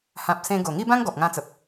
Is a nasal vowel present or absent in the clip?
present